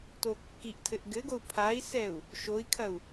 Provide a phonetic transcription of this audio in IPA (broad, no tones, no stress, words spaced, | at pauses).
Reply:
tokːiʔtʰɘʔ ɡɘɡou̯ pʰai̯sɛu̯ | ʃoi̯kʰɐu̯